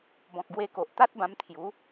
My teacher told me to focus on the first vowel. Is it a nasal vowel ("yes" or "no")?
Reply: yes